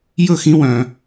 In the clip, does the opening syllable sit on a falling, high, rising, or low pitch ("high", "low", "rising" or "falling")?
falling